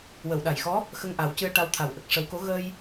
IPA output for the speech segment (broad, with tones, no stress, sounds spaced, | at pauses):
w ə˨˩˨ w ɗ a˨˩ j x ɔ˧˥ | x ə˧ ŋ ʔ a˨˩˦ w c ɨ˧ ə̯ ʈ a˧ w t̪ʰ a˨˩ w ʔ ə˨˩ k̚ ʂ ə˨˩˦ w k o˧˥ ɣ ə˧ j